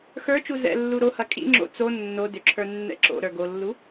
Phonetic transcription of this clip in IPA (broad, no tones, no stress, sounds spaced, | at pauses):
x ə˞ t͡ʃ u z ɛ̰ lː u ɾ o h ɐ kʼ ḭ ŋ͡ǁ o̰ t͡s o nː o d ʏ ǁʰ ə˞ nː ɛ̰ ǁ o̰ ɾ ə˞ ɡ o lː u